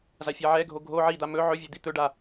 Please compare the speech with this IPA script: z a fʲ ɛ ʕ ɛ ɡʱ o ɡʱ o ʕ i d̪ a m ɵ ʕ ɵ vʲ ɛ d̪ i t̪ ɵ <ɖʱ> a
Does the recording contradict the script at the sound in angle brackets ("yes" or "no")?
yes